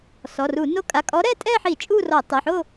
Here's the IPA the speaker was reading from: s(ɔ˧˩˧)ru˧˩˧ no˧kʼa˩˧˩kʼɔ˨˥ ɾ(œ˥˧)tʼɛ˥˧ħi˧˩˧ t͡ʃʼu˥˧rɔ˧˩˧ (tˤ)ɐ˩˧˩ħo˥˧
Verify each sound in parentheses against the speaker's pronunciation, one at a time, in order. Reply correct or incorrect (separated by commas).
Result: incorrect, incorrect, correct